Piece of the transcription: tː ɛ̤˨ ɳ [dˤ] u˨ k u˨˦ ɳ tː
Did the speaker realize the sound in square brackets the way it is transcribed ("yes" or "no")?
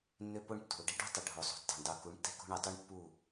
yes